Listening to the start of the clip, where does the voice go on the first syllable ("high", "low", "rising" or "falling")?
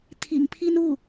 low